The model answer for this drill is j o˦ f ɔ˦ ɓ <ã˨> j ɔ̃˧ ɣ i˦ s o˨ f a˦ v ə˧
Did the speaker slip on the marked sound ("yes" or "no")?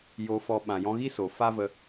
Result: no